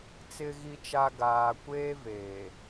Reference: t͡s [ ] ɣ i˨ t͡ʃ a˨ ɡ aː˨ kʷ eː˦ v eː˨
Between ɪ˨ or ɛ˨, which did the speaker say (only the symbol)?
ɪ˨